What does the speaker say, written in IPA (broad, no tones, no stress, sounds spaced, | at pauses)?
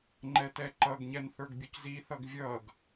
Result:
ŋ͡ǃ ɛ t ɛ ǃ ʌ ɡ ɲ ɛ n θ ə˞ ɡ bʲ ʊ c z i θ ʌ ɡ vʲ ʌ ɡ